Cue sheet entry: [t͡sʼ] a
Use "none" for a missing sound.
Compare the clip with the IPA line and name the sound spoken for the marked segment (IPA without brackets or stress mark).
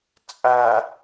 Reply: t͡sʼ